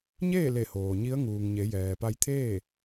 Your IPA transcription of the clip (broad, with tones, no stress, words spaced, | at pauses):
ɲeː˥˨le˧˩ hoː˩ɲi˧˥ə̯ŋuː˩ŋɲe˩˧ jɛː˩pa˧jt̪ʰeː˥˨